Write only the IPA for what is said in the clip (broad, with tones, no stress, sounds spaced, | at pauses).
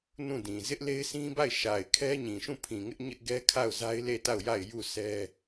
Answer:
n ũ˦˨ d ĩ˨ z ɪ˦ ʔ l e˦ ɪ̯ sʰ ĩ˦ b a˦˨ ɪ̯ ʃ a˨ ɪ̯ kʰ ɛ˦ ɲ ĩ˨ ʃ ũ˦˨ pʰ ĩ˨ ŋ ɪ˦ ʔ ɲ ɪ˦ ʔ ɡ ɛ˦ kʰ a˦˨ ʊ̯ z a˦ ɪ̯ l e˦˨ t a˦˨ ʊ̯ j a˦˨ ɪ̯ j u˦˨ sʰ ɛ˦